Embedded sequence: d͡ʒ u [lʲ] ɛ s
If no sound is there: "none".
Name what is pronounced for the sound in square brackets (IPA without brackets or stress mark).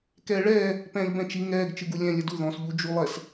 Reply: lˠ